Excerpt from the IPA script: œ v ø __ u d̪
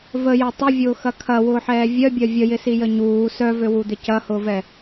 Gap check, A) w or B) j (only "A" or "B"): A